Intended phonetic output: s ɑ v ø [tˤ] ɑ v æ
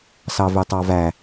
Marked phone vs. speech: correct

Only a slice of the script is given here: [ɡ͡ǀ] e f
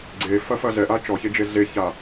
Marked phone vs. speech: correct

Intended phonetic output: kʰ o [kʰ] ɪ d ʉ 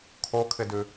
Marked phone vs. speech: correct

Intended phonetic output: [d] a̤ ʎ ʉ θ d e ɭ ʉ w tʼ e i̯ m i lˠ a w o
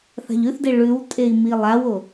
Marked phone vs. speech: incorrect: θ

